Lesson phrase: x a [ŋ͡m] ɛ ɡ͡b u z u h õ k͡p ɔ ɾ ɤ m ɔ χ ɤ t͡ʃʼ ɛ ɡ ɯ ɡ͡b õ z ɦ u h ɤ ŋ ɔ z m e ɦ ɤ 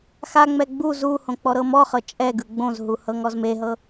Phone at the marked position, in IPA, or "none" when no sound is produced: ŋ͡m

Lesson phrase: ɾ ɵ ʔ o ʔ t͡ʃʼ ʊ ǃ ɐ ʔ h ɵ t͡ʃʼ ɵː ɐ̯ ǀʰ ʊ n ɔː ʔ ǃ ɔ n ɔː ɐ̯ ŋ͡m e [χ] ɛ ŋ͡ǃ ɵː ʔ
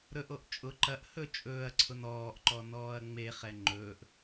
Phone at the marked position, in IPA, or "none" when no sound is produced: χ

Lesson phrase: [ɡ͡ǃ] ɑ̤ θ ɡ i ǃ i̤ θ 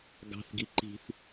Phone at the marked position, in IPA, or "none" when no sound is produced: ɡ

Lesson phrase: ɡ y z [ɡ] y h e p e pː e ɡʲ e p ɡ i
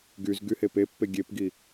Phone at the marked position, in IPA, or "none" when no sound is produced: ɡ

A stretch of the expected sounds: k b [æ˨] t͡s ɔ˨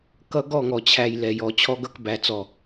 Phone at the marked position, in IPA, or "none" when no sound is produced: æ˨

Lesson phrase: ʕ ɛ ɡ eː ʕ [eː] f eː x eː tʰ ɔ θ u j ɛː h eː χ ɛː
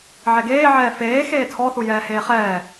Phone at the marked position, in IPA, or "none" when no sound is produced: ɛː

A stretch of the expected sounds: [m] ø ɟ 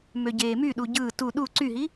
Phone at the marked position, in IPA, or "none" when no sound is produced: m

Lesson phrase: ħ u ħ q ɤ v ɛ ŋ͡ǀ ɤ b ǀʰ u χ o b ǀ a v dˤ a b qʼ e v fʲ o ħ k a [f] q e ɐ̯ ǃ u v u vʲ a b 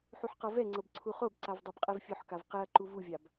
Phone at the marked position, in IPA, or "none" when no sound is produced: v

